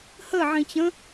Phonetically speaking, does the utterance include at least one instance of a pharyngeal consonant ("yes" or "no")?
yes